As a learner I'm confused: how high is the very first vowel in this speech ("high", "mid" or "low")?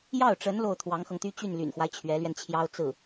low